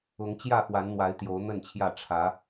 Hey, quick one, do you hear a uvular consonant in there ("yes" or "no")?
no